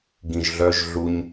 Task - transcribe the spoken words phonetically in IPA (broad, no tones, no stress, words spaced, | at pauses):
ɡĩʒɮœʒ ɮuɲ